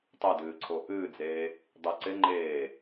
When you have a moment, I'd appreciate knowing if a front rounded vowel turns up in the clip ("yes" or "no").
no